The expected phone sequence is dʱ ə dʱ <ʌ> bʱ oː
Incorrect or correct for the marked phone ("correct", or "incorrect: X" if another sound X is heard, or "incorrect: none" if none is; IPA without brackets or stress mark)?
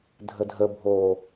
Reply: incorrect: ə